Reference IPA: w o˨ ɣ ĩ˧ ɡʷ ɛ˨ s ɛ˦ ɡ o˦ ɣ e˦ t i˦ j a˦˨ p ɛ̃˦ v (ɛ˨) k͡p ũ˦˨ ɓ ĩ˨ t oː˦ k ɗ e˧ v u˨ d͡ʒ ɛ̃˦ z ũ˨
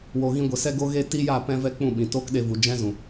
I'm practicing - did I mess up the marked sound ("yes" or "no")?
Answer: yes